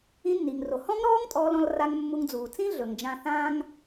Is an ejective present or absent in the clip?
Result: present